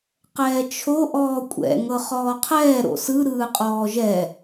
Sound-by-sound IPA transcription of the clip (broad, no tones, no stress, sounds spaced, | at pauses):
q ɛː t͡ʃʰ o ʔ ɔː kʷʼ ɛ̰ ŋ ɤ χ ɔː qʰ ɛː ɾ o̰ s ɯ ɾ ɯː qʼ ɔː ʒ ɛ